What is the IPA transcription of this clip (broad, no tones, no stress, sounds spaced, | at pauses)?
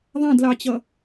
ðˤ æ̃ d l ɑ t͡ɕ ʌ